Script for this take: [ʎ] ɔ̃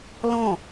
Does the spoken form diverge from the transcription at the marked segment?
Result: yes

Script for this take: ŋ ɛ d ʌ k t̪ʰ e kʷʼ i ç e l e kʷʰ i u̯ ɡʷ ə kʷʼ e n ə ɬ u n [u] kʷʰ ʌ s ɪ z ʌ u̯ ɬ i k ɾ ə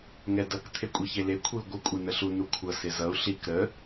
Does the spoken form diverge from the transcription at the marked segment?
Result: no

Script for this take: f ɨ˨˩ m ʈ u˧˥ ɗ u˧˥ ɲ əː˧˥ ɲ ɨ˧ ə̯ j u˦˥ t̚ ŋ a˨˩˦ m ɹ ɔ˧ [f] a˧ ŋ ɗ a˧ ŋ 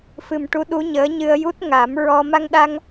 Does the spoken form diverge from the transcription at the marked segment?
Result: yes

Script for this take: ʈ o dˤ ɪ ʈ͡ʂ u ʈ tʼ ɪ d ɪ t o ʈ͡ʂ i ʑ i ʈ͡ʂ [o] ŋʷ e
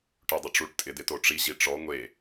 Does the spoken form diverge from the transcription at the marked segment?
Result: yes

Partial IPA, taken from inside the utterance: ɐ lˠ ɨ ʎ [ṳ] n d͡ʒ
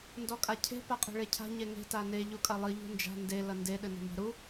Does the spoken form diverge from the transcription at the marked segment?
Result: no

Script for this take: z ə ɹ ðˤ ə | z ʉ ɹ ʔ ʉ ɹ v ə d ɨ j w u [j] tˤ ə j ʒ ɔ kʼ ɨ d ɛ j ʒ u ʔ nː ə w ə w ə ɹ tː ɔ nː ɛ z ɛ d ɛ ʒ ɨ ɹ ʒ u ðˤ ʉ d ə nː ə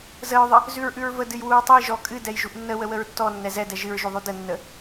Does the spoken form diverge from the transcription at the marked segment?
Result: yes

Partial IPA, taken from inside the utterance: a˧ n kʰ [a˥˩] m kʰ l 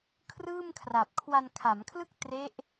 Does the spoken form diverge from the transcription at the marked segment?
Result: yes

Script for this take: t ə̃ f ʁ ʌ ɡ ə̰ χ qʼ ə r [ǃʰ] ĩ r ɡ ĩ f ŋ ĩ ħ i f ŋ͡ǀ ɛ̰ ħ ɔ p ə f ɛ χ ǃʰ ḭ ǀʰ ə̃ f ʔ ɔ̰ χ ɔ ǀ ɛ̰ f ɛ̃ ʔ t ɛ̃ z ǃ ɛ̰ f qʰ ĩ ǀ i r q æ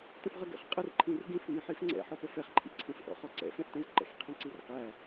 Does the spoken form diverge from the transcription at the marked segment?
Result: no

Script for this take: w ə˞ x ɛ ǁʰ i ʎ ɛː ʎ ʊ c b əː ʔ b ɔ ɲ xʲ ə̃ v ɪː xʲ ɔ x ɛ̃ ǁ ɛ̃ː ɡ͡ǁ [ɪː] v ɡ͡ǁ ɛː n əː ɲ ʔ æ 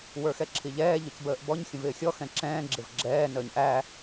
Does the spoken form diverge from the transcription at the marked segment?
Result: yes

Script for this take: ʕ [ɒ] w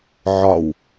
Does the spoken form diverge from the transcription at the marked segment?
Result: no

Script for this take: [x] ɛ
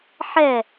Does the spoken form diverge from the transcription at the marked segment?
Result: yes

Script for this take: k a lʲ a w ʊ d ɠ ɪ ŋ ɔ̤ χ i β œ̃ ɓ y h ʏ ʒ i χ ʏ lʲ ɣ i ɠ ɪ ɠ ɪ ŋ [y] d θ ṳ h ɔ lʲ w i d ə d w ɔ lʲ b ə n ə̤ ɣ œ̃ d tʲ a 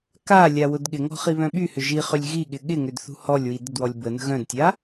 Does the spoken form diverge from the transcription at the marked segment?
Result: yes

